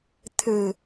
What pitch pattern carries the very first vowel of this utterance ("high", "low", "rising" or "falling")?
low